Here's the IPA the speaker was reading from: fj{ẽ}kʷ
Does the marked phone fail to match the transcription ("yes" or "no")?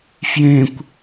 no